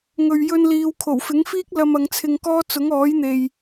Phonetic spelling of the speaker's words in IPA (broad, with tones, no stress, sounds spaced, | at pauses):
ŋ ɵ˧ ɥ j ɵ˥ n l iː˧ w kʰ o˨˩ w f ɪ˨˥ ŋ f iː˥ k̚ l ɐ˧ m ɐ˨˧ ŋ t͡sʰ ɪ˧ ŋ k ɔː˥ t͡s ʊ˨˥ ŋ ɔː˨˥ j n̪ e˨ j